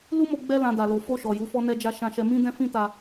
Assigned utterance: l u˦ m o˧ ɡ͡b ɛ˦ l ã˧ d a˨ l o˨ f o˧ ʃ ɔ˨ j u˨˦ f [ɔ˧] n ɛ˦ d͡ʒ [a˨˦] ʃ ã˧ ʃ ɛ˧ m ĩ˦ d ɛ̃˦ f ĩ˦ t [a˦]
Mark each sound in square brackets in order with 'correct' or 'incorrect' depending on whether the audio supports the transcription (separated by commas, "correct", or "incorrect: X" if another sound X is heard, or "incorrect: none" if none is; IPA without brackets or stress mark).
incorrect: ɔ˦, incorrect: a˦, incorrect: a˧